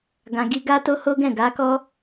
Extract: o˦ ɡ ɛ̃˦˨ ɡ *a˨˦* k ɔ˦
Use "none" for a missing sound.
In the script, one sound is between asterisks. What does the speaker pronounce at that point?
a˨˦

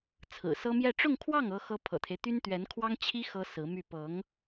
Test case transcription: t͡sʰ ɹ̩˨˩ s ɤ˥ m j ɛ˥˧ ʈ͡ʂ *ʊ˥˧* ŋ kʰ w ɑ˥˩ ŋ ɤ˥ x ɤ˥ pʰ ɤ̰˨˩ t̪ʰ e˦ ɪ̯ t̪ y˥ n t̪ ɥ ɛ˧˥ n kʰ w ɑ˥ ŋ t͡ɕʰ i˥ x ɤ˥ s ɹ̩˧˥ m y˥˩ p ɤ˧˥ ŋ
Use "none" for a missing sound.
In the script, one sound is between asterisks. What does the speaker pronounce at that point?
ʊ˥˧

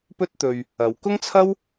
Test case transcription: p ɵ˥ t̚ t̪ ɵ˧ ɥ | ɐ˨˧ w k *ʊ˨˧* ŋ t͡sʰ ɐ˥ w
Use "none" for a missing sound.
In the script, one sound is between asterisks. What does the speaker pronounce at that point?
ʊ˥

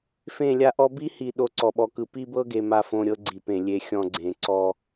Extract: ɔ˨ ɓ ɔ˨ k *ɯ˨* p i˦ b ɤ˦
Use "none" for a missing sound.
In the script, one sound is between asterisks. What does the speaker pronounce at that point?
ɯ˨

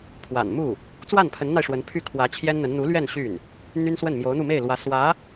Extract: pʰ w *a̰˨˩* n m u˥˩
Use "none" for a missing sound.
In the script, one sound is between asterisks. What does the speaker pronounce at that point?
a̰˨˩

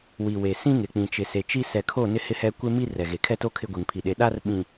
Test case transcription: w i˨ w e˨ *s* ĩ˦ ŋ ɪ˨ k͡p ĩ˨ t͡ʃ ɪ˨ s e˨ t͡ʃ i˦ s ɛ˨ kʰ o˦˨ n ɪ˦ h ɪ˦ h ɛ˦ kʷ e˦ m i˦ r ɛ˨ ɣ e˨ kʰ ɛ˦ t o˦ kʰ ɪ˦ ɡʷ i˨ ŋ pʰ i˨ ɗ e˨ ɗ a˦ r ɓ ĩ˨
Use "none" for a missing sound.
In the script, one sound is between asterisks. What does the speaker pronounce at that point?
s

